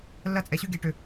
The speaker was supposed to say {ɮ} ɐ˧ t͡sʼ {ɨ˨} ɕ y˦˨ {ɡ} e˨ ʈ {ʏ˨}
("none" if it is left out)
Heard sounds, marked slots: lː, ɛ˨, ɡ, ʏ˨

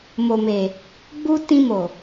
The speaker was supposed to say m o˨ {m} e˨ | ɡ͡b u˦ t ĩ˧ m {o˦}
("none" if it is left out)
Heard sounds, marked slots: m, o˨

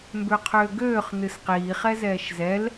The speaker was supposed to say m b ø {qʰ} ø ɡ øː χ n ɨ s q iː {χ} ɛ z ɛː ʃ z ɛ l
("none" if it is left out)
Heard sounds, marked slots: qʰ, χ

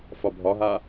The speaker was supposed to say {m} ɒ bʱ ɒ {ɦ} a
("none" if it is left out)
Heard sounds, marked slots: f, ɦ

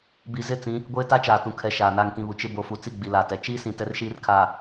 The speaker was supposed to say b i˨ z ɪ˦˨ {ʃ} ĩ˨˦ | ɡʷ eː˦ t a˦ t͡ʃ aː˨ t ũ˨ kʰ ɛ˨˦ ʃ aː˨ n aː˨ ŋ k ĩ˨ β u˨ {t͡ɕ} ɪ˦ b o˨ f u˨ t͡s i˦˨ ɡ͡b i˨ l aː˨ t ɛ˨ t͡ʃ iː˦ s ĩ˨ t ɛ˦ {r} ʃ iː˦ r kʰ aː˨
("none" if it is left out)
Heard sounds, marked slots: t͡s, t͡ʃ, r

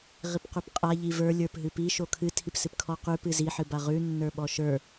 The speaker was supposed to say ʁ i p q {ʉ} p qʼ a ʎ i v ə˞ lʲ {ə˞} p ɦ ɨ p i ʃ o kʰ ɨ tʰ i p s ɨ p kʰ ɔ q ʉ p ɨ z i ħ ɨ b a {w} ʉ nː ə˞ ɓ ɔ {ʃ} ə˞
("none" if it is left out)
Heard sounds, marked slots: ʉ, ə˞, ʁ, ʃ

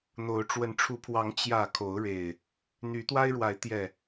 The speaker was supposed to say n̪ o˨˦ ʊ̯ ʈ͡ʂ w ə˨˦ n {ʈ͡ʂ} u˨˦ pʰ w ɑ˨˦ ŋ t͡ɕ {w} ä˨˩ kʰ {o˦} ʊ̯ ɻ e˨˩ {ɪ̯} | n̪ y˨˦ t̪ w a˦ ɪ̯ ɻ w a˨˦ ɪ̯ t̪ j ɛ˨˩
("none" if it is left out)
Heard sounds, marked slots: ʈ͡ʂʰ, j, o˨˦, ɪ̯

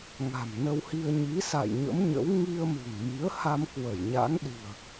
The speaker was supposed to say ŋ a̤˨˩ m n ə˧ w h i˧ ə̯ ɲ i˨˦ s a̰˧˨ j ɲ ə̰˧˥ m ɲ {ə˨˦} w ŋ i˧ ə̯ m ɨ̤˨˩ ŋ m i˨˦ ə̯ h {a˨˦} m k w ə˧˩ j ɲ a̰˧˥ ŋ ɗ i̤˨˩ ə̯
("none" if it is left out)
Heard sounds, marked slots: ə̰˧˥, a˧

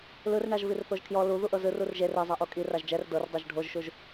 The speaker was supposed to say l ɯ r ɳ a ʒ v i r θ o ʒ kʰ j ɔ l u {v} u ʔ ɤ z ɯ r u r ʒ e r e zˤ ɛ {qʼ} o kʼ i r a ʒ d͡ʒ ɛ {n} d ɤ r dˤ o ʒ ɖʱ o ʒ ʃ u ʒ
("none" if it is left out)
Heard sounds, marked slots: ð, ʔ, r

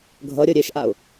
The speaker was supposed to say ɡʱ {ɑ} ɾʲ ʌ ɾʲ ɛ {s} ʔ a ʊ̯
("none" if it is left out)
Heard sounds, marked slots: ʌ, ʃ

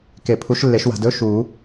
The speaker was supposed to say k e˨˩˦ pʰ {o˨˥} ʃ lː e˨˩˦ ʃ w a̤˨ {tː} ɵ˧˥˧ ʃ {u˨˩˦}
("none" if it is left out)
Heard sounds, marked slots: u˨˥, d, u˨˩˦

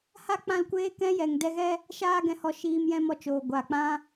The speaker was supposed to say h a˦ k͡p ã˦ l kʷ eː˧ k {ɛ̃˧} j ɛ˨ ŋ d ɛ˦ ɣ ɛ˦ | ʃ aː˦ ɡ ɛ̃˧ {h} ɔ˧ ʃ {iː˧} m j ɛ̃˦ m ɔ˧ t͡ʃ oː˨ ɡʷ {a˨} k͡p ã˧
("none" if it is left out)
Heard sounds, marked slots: ɛ̃˧, h, iː˧, a˨

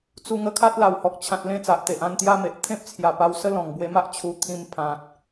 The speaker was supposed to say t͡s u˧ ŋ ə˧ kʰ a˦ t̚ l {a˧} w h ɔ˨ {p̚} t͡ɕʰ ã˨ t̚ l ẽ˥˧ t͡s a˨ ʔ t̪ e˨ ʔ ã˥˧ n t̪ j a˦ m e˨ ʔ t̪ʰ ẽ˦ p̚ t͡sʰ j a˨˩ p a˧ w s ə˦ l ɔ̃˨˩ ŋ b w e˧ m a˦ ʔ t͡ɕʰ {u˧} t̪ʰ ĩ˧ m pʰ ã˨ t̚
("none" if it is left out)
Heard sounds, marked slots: a˨˩, k̚, u˧

